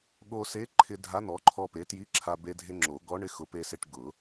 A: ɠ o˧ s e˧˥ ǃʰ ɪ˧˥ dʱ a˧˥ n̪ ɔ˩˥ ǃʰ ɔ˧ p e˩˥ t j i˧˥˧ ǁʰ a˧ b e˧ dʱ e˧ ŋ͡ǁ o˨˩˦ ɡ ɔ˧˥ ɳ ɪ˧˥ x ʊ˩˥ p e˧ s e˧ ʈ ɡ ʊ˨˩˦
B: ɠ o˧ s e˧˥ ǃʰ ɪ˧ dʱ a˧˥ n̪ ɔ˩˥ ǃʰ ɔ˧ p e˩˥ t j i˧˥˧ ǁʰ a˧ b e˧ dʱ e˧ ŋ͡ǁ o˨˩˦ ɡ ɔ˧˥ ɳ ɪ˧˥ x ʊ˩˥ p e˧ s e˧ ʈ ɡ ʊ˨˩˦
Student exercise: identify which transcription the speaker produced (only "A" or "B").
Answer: B